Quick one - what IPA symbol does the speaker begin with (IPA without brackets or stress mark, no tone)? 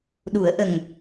ɗ